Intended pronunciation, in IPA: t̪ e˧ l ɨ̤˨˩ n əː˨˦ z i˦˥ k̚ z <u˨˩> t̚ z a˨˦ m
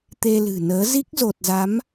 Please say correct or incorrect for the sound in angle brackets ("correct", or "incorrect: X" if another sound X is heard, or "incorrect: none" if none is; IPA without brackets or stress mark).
incorrect: o˨˩